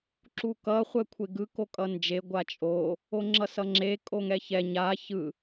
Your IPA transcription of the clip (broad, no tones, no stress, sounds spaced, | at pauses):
ǁ u k ʌ χʷ ɛ kʷʰ e ɡ ɯ k o kʼ ʌ n d͡ʒ e ɡʷ a t͡ʃʼ o | o ŋ͡ǁ ʌ s ʌ ŋ͡ǁ e kʼ o ŋ ɛ ç ɛ ɲ a ç ɯ